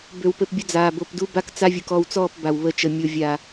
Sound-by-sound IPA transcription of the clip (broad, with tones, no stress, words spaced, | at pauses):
bø˨w pɘ˨pbʲɐ˦ d͡zaː˨ bo˨pdu˦ba˦k t͡sa˦vʲu˨k ɔ˦˨wt͡sɔː˦˨p ba˨wβə˦˨t͡ʃə˨ mʲo˨ vʲa˨